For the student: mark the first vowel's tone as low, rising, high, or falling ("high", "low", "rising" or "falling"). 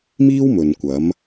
high